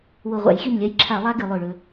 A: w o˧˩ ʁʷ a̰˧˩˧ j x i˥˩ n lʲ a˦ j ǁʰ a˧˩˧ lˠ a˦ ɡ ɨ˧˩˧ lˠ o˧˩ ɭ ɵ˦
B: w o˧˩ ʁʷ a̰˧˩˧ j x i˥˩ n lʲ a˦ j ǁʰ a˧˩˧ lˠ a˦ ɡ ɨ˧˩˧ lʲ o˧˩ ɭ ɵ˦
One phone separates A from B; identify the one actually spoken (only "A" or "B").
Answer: A